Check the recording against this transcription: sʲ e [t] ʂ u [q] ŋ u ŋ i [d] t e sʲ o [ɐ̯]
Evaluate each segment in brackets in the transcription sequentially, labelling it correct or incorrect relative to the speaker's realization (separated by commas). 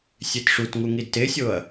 correct, incorrect, correct, correct